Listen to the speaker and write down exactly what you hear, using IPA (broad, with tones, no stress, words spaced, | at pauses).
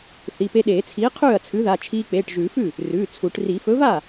θi˩˧˩pe˧ɗeː˨˩˦t͡sʰiː˨˥ qʰʉː˥˩ɐ̯t͡sʰʉ˨˥ða˩˧˩ t͡ʃʰiː˧k͡peː˩˧˩ʈ ʒʉː˨˩˦fʉ˥˩ | rʉː˩˧˩ t͡sʰu˨˩˦ʈ ri˨˩˦fɵ˨˥va˥˩